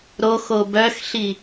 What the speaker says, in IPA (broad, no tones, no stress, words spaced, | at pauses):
ɾoxo bœxɬi